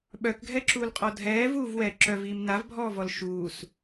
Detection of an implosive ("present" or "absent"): present